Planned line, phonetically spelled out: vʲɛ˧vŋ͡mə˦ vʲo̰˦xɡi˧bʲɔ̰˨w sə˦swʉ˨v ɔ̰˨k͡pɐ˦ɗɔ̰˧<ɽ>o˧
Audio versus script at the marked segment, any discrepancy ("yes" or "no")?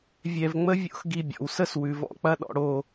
no